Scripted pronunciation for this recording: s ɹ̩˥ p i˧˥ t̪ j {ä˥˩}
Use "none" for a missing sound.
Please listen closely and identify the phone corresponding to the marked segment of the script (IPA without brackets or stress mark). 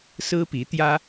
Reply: ä˥